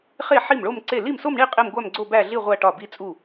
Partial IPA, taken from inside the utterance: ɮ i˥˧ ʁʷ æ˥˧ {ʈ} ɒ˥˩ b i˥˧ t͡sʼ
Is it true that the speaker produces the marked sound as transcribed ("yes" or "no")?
yes